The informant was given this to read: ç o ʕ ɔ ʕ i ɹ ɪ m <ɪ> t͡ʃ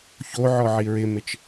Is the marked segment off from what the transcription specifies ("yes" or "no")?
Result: no